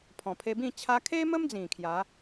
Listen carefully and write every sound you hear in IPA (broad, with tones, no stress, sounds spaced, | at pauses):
pʰ ɔ̃˨˩ pʰ e˧ b ĩ˥˧ t͡ɕʰ a˧ kʰ e˦ m ə˦ m d͡z ĩ˨˩ kʰ j a˨˦